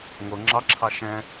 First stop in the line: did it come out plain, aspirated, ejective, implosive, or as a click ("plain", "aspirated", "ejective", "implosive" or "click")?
click